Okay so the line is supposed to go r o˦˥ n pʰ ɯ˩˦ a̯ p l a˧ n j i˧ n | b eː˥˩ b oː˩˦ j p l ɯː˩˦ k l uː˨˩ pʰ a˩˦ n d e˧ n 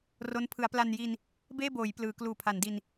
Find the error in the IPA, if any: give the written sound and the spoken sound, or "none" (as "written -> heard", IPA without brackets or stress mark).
e˧ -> i˧